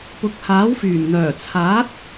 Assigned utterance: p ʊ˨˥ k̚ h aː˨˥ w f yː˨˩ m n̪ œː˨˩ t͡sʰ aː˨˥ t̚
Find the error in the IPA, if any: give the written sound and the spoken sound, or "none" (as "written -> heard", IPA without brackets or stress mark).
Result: none